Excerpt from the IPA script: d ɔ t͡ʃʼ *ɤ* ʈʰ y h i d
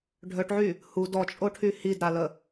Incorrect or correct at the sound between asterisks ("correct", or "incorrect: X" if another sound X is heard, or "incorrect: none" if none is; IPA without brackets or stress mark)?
incorrect: o